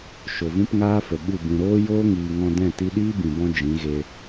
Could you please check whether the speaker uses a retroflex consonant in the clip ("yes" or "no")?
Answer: no